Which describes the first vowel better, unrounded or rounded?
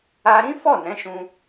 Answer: unrounded